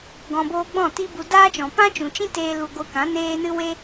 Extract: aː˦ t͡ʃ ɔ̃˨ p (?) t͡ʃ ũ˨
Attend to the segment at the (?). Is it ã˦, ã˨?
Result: ã˦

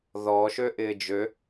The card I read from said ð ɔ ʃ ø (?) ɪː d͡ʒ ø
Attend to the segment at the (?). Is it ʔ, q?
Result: ʔ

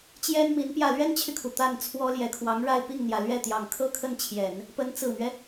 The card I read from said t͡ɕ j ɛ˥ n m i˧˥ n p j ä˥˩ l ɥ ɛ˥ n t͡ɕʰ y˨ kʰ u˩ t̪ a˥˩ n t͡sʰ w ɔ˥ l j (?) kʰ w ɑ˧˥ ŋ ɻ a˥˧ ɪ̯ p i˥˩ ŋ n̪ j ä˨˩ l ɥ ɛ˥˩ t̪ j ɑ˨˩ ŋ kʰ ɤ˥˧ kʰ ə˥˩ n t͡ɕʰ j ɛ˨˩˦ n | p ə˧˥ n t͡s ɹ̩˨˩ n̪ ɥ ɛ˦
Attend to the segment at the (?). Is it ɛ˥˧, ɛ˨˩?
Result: ɛ˨˩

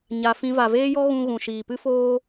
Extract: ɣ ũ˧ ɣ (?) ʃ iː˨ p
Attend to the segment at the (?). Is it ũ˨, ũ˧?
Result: ũ˨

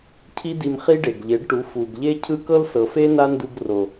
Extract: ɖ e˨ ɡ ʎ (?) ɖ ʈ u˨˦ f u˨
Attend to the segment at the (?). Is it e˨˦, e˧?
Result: e˨˦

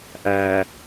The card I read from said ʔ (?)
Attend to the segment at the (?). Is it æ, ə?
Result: æ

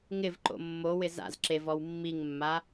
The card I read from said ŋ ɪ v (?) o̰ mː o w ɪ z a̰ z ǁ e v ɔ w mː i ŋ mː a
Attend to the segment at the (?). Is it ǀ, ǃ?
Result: ǃ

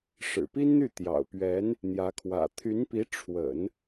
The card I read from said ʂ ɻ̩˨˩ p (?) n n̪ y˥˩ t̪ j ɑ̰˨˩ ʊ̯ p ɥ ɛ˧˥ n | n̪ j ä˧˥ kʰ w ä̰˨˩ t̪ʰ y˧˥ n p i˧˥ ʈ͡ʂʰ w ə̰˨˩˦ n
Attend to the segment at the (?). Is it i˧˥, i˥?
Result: i˥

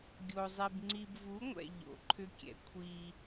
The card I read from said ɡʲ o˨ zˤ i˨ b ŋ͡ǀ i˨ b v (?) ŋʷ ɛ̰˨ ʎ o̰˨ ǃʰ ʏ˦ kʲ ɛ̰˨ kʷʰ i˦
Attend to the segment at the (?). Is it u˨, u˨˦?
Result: u˨˦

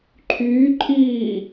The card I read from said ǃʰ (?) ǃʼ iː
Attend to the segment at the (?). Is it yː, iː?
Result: yː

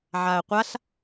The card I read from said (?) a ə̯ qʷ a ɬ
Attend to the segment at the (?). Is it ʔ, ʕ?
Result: ʕ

